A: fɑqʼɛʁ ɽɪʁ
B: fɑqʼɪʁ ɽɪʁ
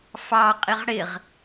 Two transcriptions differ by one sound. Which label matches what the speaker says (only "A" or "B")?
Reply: B